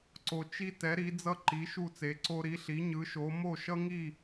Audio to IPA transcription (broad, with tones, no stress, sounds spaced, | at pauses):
ǀ o˧ t͡ʃ i˥ t ɛ˨˥ ɾ i˨˥ d͡z ʌ˥ ǃ i˨˥ ʃ u˥˨ t͡s e˨˥ ǀ o˥ ɾ i˨˥ ɬ i˨˥ ɲ ɯ˨˥ ʃ o˨˥ m o˥˨ ʃ ʌ˥ ŋ i˥˨